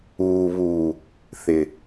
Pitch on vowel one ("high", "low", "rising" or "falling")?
low